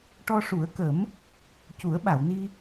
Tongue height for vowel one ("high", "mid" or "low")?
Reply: mid